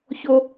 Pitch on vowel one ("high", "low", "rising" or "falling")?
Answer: high